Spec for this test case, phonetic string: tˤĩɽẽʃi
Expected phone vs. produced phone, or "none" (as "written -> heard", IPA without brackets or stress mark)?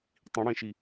none